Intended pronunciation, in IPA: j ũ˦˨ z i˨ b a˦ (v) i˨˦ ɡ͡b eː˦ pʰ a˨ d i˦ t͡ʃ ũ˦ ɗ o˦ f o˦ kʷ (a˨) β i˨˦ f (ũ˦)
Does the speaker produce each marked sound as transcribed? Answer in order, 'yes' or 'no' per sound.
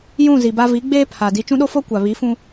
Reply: yes, yes, yes

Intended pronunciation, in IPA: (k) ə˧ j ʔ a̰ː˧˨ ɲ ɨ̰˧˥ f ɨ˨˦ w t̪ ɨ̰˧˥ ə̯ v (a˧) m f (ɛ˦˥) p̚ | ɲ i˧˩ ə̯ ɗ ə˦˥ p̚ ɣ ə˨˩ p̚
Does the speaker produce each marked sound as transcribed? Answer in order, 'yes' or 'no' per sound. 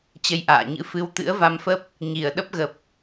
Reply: no, yes, no

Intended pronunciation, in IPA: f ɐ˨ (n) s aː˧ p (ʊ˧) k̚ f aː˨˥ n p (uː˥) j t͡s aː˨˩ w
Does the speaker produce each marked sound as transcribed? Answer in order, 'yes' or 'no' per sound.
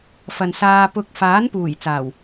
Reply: yes, yes, no

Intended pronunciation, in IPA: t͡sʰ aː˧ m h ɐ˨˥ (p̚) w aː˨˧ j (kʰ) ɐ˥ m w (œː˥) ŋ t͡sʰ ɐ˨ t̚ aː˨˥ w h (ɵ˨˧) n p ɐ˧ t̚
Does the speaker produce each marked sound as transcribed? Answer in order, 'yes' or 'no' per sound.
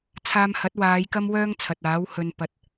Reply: no, no, yes, no

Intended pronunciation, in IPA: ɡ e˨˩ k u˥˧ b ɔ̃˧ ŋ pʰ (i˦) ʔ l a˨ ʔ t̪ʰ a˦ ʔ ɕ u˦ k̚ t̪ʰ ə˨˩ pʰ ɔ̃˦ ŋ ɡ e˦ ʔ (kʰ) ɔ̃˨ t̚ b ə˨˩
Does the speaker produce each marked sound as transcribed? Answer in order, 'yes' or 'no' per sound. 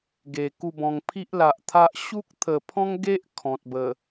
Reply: yes, yes

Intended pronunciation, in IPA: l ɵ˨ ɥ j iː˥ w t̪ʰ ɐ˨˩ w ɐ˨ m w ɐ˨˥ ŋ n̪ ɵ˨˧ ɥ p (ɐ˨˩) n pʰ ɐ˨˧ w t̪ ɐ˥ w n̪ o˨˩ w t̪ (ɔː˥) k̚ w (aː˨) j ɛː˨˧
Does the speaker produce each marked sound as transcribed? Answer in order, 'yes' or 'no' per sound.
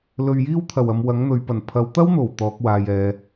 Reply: yes, no, yes

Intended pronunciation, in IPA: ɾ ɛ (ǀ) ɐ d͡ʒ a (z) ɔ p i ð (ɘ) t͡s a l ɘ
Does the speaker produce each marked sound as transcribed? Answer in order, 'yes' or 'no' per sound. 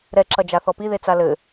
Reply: no, no, no

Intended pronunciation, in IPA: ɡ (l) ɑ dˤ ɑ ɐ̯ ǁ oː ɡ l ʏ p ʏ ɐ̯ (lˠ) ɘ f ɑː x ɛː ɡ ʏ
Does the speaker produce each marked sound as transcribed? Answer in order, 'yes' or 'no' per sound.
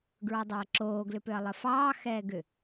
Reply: no, yes

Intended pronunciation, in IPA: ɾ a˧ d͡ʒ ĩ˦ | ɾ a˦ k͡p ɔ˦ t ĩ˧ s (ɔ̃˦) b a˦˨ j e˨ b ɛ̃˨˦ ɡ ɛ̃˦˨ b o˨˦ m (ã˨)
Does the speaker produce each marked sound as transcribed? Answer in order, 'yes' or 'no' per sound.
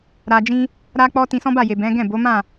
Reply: yes, no

